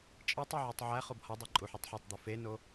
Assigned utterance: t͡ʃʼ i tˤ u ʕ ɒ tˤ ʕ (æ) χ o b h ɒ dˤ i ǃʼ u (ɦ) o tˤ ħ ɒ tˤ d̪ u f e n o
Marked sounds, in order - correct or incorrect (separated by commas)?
correct, incorrect